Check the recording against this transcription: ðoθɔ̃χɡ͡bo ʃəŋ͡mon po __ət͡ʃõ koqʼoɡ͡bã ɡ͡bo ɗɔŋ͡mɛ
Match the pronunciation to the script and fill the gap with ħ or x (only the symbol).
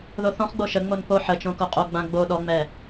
ħ